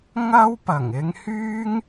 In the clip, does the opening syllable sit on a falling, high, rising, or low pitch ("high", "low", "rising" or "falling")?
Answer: high